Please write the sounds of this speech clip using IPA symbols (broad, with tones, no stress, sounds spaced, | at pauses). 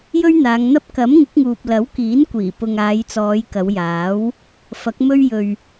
j ɵ˥ ɥ n̪ aː˨˧ ŋ n̪ ɐ˥ p̚ k ɐ˨˥ m ŋ ɪ˨˥ k̚ ŋ uː˨ p̚ l ɐ˨˥ w k iː˨˥ n kʷ iː˨˩ p ʊ˨ ŋ aː˨˧ j t͡s ɔː˨˧ j k ɐ˨˧ w j aː˨˥ w | f ɐ˨˥ k̚ m ɵ˥ ɥ j ɵ˧ ɥ